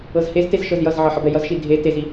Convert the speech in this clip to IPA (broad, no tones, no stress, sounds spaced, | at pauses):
ɤ z h e z t e z ʃ ɤ z j ʌ z ʕ ʌ ħ ʌ b ɛ j ʌ z ʃ i dʱ e t e z i